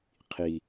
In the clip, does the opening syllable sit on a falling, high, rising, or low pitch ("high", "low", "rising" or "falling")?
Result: low